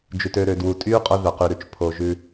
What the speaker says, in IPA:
d͡ʒ ʉ˩ t ø˨ ɾ ø˩ d w u˩ tʼ y˦ qʼ o˦ ð œ˩ q y˩ ɾ ʉ˨ t͡ʃ pʰ o˩ ʒ ʉ˨

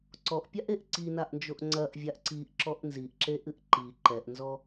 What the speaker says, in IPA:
ǀ ɔ ʔ pʲ a ʔ e ʔ ǀ i n a ʔ n d͡ʒ o ʔ ŋ͡ǀ ɐ ʔ vʲ a ʔ ǀ i ʔ ǁ ɔ ʔ n z i ʔ ǁ e ʔ ɨ ʔ ǃ i ǃ ɛ ʔ n z ɔ

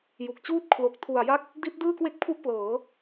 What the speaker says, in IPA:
j u˨˩ k̚ t͡ɕ uː˥˩ t̚ kʰ l o˨˩ k̚ tʰ u˨˩ a̯ j a˦˥ k̚ | d i˦˥ t̚ d ɯː˥˩ k w e˥˩ k̚ pʰ u˥˩ ʔ p l ɤː˩˦

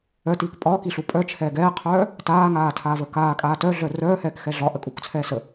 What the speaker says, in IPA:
œ t iː k pʼ ɒː k i ɬ u pʼ œ t͡ʃʰ ɛː ɡ ɛː qʰ œː | t aː ŋ aː tʰ aː v ə k aː kʼ aː t œ ɮ œ r œː h ɛː k x ɛ ɮ ɒ ʔ ə kʼ u k t͡sʰ ɛː s ə

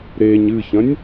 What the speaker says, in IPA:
ɾ e ɲ ɨ ç ɐ̃ nʲ

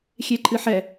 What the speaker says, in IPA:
xʲ e ǃʼ ɨ ħ ɛ

